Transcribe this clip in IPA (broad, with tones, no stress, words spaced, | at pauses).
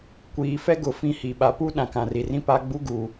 kʷiː˨fɛ˦ɡʊ˨ fĩ˦hi˨ ɓa˨pu˦ ɗã˨kã˨ri˨rĩ˦ pa˦ɡ͡bu˦ɡu˨